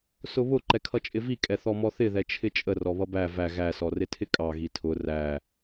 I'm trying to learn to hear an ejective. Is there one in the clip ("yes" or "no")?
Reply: yes